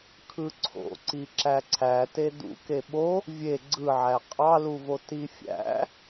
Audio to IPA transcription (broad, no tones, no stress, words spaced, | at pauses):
kʰɯǀʰo̰ǀi ǁæǀʰæte dṵke ɓo | vʲe ɡ͡ǀɯʕæ qʼɑluvo tifʲæ̰